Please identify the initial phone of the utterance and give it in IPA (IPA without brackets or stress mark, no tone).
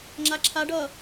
ŋ͡ǁ